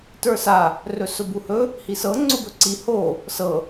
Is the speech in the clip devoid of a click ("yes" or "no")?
no